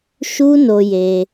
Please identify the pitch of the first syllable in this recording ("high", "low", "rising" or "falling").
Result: high